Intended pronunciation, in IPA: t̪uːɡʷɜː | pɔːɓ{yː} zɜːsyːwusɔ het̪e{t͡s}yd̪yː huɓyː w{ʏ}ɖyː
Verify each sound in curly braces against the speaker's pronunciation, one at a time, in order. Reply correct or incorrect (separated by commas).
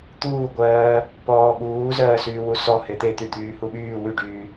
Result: incorrect, incorrect, incorrect